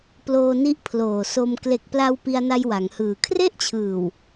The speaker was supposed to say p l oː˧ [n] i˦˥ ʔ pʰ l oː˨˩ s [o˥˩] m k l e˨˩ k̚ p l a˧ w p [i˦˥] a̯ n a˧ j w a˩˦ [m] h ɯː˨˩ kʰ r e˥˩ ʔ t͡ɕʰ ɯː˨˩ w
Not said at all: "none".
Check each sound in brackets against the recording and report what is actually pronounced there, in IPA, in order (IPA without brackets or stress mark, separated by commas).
n, o˧, i˧, ŋ